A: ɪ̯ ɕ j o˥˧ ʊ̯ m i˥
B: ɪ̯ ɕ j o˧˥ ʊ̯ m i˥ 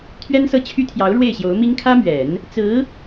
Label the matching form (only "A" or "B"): B